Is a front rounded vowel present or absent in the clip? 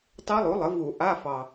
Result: absent